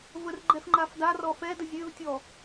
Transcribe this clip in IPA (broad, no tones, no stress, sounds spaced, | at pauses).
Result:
v ə r ɡ͡ǃ ɛ f ŋ͡ǃ a f d a r ɔ f ɛ d ə zʲ ø v tʲ ɔ